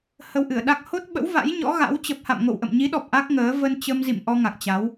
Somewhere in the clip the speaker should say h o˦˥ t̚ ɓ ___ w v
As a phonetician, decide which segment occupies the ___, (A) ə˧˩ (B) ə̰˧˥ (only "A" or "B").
B